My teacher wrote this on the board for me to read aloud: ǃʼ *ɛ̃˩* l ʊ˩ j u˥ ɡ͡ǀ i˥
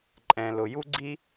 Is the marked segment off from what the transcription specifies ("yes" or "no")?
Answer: no